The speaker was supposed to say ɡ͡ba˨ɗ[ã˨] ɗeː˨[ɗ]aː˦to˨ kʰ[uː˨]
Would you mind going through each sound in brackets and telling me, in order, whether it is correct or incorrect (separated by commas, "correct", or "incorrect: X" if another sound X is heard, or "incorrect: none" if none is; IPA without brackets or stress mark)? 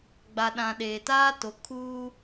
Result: correct, incorrect: t, incorrect: uː˦